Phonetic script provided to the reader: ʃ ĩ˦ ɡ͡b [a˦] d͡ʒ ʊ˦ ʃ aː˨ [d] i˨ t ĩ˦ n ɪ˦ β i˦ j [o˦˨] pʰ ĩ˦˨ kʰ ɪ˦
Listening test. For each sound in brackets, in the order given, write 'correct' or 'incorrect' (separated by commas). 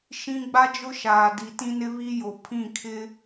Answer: correct, correct, incorrect